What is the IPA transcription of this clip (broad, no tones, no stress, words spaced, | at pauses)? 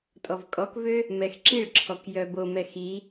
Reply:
tʼɔvkʼɔkvø | mɛxǁiɭǁʰɔk jœbomɛ xi